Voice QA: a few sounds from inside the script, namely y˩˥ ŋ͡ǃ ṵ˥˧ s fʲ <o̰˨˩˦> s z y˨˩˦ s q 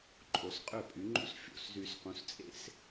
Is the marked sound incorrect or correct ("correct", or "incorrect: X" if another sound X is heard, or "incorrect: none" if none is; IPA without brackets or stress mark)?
incorrect: o̰˥˩